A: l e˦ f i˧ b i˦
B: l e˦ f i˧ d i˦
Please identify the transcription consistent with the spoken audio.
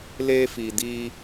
B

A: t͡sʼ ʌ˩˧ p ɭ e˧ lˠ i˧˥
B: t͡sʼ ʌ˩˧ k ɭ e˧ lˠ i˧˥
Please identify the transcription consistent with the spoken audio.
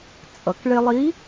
B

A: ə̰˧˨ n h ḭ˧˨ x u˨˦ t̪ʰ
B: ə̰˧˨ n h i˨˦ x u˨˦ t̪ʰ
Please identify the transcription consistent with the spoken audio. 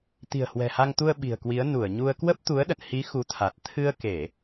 B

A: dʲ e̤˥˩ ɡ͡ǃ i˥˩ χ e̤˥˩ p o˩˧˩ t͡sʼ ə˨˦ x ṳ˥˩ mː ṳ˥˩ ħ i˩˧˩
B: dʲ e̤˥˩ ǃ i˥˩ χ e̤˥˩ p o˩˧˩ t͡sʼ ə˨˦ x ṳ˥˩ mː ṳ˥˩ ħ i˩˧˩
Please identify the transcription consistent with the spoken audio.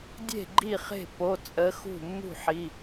A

